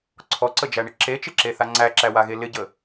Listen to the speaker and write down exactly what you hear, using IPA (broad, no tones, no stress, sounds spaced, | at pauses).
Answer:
ǀʰ ɔ ǀ ə d͡ʒ æ ɳ ɪ ǁ e t͡ʃ ɪ ǁ e θ a ŋ͡ǀ æ ǁ æ w a ɣ e l ɪ ɟ ə